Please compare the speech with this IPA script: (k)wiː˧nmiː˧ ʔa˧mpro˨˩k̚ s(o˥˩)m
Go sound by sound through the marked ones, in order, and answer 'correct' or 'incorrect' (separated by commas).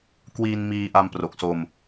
correct, incorrect